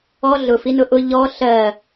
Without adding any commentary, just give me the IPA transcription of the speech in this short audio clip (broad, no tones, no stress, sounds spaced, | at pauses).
ɔ ɮ ʊ f i n ʊ ʔ ʊ ʎ ɔ ɬ ɜ